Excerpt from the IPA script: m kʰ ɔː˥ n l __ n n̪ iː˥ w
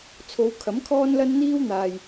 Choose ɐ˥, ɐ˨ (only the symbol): ɐ˥